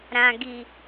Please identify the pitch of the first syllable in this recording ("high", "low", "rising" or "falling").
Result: low